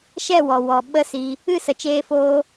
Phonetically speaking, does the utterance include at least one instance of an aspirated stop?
no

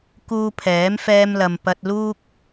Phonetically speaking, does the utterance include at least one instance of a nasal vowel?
no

